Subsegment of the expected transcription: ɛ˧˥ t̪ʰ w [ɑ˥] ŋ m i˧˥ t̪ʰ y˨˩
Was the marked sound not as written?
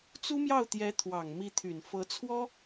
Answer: yes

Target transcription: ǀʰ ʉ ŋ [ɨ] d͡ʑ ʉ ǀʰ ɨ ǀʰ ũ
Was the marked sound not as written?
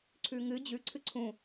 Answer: no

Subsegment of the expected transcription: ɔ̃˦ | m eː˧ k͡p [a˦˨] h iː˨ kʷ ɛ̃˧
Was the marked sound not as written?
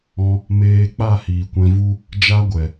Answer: no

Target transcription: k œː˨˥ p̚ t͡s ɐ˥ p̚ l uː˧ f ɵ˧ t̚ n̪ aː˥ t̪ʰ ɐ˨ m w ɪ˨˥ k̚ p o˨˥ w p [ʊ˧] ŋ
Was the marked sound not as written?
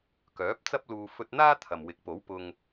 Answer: no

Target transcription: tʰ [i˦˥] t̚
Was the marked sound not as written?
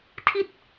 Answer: yes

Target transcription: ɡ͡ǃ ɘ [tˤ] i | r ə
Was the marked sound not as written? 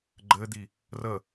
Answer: yes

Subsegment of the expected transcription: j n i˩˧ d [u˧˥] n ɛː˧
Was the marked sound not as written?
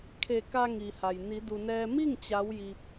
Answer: yes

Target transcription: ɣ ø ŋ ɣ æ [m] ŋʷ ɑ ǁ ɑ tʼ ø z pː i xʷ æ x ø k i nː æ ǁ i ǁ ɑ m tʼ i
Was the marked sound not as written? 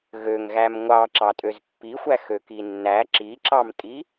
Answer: no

